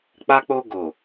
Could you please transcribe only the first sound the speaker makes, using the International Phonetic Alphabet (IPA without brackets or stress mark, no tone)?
k͡p